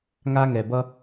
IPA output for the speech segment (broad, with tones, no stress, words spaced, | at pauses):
ŋa˧ŋɛ˩ bʌ˥